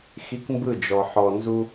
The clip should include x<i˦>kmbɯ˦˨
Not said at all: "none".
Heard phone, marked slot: i˦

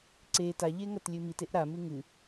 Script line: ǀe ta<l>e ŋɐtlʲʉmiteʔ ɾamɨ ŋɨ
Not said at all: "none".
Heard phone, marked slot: ʎ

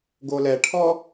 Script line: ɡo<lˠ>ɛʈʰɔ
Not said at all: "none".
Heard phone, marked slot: l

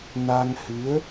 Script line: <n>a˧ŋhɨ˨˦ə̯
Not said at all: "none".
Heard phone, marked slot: n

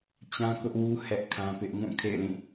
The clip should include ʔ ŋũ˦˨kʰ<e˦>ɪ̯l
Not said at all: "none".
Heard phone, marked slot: ḛ˦˨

